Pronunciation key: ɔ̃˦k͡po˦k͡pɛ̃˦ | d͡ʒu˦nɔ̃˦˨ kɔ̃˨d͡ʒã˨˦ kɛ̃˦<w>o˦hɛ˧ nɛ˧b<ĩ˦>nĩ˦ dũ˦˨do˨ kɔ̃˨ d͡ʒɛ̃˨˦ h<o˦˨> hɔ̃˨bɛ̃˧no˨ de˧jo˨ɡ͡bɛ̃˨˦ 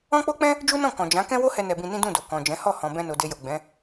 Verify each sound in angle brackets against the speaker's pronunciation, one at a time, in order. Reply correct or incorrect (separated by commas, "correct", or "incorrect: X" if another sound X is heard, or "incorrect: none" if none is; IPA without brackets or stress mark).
correct, incorrect: ĩ˧, incorrect: ɔ˦˨